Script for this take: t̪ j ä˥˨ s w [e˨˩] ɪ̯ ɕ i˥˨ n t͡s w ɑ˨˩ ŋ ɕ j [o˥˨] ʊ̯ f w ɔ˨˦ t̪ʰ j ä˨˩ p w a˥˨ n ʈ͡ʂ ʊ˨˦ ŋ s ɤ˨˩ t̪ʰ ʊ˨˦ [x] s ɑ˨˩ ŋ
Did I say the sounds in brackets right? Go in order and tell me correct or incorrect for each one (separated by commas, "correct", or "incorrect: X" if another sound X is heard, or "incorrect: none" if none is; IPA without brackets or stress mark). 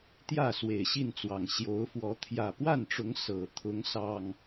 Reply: correct, incorrect: o˨˦, incorrect: ŋ